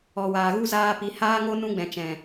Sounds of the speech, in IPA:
ɔ˨ w aː˨ ɣ u˦ z aː˧ p i˨ h aː˦ ŋ o˦ n ũ˦ ɡ͡b ɛ̃˨ t͡ʃ ɛ̃˨

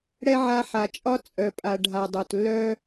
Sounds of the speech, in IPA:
ɽ ɛ˦ ʕ a˧ ħ a˨ t͡ʃʼ ɒ˦ t͡sʼ œ˨ pʼ a˨ ɖʱ a˨ dˤ o˨ t lː œ˦

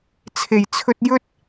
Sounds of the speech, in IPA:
t͡sʰ e˨˩ j t͡sʰ ɵ˧ t̚ j ɵ˥ t̚

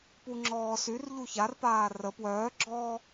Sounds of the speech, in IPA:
p u ŋ͡ǁ ɔː s y r ʎ u ç a r p aː r ə p w œː ɡ͡ǁ ɔː

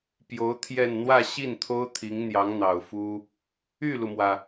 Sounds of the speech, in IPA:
p j o˧˥ ʊ̯ t̪ʰ j ɛ˥˧ n n̪ w ä˥˧ ɕ i˥˩ n t̪ʰ o˥ ʊ̯ t̪ʰ i˧˥ ŋ n̪ j ɑ˧˥ ŋ n̪ ɑ˨˩ ʊ̯ f u˥ | y˥˩ l u˩ m w ä˩

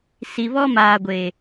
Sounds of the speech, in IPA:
s i˨ β ɔ˦ m aː˨ ɡʷ e˨

